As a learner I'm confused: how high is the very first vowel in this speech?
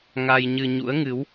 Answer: low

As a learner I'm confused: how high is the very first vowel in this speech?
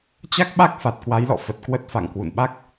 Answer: low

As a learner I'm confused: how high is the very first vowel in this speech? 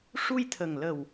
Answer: high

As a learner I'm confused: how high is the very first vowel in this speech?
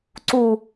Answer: high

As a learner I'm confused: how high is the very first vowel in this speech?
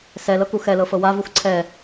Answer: mid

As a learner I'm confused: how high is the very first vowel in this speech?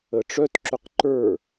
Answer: mid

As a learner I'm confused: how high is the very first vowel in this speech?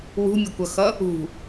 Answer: high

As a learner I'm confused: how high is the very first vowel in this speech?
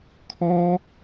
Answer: mid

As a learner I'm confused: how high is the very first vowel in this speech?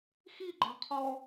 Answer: high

